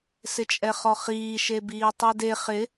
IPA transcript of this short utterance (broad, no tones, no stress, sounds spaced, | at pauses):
s ɪ t͡ʃʼ ɛ χ ɔ χ iː ʃ e b iː tˤ e d e χ ɪ